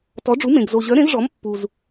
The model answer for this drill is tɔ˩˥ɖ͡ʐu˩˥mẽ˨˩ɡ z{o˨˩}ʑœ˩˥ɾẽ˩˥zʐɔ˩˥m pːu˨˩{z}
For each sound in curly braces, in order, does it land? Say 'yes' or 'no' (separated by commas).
yes, yes